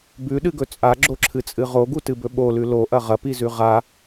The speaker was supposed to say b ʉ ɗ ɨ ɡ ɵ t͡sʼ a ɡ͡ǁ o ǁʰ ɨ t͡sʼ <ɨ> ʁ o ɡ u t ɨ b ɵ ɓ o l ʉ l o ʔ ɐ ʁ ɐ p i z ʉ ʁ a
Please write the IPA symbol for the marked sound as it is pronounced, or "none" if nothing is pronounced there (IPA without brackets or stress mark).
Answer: ɨ